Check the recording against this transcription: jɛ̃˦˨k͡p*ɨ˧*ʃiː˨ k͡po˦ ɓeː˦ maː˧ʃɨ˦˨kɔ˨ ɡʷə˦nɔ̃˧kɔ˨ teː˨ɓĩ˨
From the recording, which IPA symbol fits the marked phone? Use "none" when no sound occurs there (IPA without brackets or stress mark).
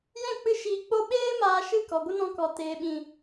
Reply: ɨ˧